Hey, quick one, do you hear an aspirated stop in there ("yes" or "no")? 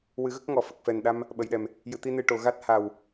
no